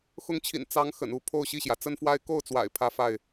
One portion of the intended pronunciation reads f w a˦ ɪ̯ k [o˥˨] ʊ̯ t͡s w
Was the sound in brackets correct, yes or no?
yes